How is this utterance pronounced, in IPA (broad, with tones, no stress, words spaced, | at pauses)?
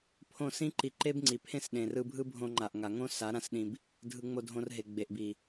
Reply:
pʰõ˦˨ sĩ˦ ǃi˧ǃe˦bŋ͡ǀi˨pʰẽ˦s ɗẽ˨rɯ˧bʱɯ˦ bʱõ˧ŋ͡ǃa˨ʔŋa˨ ŋõ˦sa˨˦ ɾã˦sɗĩ˧b | dʱɯ˧ŋ͡mo˧dʱõ˧rɦe˨ ɡ͡be˨ʔbi˨